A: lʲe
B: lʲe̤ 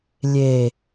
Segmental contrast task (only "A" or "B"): A